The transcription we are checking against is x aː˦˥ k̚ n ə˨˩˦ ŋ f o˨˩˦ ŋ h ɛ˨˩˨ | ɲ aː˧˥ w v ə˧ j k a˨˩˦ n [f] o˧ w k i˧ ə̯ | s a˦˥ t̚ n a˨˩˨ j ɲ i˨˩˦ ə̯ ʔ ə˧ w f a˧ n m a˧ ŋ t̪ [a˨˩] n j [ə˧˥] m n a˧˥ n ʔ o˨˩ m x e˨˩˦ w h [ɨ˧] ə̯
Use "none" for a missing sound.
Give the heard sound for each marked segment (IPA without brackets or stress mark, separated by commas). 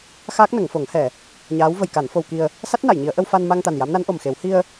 f, a˨˩, a˧˥, i˧